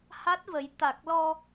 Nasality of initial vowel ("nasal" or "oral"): oral